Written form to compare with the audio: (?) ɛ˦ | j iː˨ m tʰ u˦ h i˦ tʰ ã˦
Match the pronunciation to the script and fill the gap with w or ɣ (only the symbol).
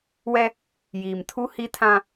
w